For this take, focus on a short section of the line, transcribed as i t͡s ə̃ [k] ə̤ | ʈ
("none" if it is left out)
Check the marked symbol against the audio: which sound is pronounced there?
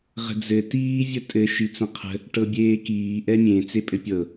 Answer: qʰ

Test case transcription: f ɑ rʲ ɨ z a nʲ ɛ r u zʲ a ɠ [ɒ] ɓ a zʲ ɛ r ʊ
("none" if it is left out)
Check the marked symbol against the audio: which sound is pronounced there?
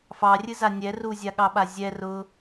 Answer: ɑ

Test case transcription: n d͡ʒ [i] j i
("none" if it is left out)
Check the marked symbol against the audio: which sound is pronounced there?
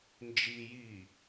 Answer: i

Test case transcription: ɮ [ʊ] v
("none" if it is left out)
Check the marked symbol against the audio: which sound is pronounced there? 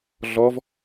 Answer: ɔ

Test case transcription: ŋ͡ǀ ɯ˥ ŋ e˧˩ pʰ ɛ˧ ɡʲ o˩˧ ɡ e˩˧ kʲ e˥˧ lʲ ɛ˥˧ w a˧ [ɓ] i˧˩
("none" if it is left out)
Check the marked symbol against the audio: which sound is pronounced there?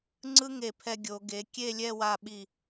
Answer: ɓ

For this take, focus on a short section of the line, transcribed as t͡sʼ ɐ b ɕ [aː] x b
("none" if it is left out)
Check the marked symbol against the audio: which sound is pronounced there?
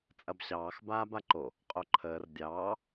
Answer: ɑː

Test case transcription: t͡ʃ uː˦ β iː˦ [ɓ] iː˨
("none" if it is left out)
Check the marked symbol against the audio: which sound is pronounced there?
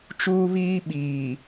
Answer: ɓ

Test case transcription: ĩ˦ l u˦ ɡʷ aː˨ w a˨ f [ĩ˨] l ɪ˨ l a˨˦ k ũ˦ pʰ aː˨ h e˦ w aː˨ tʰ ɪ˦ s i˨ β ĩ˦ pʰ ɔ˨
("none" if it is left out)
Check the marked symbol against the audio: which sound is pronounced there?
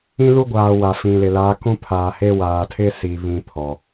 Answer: ĩ˨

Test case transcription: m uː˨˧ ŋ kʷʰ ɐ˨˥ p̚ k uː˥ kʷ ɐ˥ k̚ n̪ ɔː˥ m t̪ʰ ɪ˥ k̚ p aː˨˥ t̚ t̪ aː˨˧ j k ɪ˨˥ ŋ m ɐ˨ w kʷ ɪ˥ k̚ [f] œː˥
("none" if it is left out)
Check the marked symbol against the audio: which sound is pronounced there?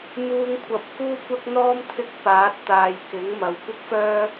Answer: f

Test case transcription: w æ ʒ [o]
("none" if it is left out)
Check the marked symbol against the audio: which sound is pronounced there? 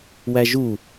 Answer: u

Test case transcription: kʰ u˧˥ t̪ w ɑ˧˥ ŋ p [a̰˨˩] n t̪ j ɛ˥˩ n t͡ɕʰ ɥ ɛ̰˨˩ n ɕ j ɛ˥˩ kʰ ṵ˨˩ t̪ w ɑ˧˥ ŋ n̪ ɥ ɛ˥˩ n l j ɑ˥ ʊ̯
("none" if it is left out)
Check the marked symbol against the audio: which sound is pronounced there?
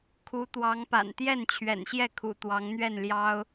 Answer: a̰˨˩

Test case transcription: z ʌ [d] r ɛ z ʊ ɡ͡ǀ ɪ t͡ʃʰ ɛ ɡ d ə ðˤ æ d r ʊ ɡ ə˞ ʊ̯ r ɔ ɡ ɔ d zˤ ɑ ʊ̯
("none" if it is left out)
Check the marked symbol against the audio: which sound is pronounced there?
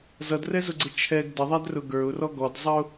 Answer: d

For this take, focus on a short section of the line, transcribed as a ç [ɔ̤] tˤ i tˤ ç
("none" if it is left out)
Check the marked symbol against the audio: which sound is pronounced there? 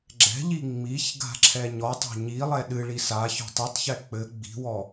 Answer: ɔ̤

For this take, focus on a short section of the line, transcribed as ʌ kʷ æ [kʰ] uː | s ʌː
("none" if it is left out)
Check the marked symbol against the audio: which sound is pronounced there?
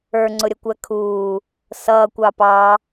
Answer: kʰ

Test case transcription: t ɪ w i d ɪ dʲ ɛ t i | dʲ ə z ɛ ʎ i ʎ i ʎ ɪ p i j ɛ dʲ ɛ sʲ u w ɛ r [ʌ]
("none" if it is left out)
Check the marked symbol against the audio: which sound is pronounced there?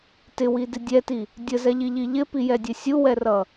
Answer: ʌ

